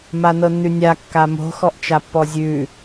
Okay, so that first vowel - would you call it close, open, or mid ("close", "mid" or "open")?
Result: open